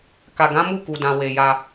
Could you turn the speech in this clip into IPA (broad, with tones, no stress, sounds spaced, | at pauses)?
k a˨ ɡ ã˨˦ m u˦˨ k u˨ d ã˨ w e˨ j a˧